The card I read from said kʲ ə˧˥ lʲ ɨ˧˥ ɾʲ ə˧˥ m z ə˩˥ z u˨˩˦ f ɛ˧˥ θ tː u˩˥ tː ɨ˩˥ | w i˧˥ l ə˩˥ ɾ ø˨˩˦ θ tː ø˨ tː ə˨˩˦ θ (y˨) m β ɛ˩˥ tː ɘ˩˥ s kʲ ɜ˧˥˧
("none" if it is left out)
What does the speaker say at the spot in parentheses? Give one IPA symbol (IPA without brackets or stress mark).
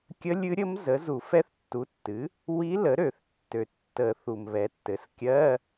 u˨